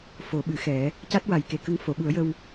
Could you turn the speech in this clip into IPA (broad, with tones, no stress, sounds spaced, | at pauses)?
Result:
f o˨˩˦ ɓ ɨ˨˩˦ x ɛ˨˩˦ | c a˦˥ t̚ w a˨˩ j k e˨˩ k ə˧ ŋ f o˨˩˨ ɓ u˨˩˦ ə̯ j ə˧ w